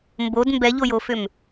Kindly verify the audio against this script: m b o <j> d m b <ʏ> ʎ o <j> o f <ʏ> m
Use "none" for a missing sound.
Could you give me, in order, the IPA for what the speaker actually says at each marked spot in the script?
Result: none, ɛ, j, ʏ

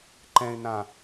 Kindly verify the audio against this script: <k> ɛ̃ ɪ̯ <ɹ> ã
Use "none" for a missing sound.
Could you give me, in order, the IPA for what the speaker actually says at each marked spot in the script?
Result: ǃ, n

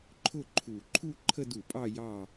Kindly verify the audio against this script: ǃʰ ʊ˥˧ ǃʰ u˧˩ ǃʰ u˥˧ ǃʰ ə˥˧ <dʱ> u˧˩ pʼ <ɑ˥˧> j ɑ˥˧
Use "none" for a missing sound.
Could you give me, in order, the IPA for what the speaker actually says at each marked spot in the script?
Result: d, ɑ˥˧

